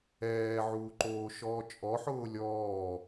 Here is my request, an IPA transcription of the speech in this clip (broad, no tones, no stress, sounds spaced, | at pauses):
ɛː ʕ uː ǃ oː ʃ ɔː t͡ʃʼ ɔ ħ ʊː lʲ ɔː